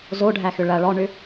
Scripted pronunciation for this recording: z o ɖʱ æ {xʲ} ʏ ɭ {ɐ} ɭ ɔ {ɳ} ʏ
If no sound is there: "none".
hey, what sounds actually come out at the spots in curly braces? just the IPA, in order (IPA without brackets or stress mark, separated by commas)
x, ɐ, ɳ